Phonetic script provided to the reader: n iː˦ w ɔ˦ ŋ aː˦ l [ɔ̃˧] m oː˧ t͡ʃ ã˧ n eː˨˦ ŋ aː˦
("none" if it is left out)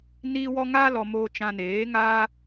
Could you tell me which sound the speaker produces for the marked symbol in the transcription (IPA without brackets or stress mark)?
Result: ɔ˧